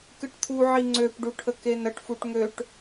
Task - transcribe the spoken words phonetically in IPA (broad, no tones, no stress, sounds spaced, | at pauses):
k ɨ ʈ t̪ʰ u ʕ i ŋ͡ǀ ø p ɖ u ʈʰ ə k e n ə ʈ f u ʈ ŋ ø ʈ